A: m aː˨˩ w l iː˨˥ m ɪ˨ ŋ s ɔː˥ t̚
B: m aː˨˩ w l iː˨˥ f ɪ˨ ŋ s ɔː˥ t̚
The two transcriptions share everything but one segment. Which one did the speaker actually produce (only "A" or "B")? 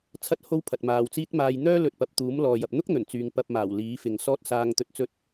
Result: B